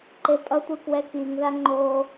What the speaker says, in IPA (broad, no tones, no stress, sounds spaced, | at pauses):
ǃ e pʼ ʌ tʷ ɯ k w ɛ k i ŋ ð a ŋ͡ǃ oː